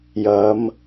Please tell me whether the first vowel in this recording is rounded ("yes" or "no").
no